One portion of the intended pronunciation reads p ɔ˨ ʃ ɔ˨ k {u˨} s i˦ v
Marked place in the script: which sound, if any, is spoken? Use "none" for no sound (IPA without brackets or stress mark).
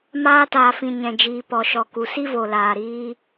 u˨